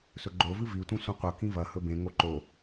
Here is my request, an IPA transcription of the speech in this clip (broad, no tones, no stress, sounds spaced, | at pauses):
s ɵ ɡ͡ǃ o v ɨ v i tʷ ĩ sʷ ĩ qʷ ɐ k ĩ v ɐ h ɵ b ẽ ŋ o ǃ o